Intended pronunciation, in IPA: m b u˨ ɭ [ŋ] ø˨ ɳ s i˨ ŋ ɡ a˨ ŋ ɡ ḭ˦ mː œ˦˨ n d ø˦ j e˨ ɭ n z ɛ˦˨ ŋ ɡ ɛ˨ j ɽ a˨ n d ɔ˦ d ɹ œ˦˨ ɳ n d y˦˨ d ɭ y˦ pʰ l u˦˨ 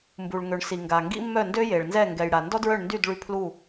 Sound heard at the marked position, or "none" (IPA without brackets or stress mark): ŋ